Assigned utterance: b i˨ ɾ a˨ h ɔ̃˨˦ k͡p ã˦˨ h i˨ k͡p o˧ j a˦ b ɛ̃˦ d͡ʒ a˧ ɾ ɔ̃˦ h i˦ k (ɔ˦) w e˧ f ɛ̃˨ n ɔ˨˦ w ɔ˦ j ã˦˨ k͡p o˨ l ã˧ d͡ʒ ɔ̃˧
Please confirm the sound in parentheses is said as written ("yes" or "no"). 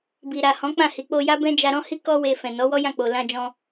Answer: yes